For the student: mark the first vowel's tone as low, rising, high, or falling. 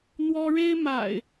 high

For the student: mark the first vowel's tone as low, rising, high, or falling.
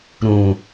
low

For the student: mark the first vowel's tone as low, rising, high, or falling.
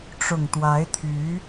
low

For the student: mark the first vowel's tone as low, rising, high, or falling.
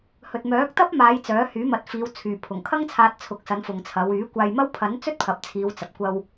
low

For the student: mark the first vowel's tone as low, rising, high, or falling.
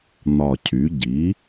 low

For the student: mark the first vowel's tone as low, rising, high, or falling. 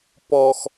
low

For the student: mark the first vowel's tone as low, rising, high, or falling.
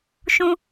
high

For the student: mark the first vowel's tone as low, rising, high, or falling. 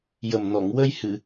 low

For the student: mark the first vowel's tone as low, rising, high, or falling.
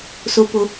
high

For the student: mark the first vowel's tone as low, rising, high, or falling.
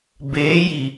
rising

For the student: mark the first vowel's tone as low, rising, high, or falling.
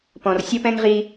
low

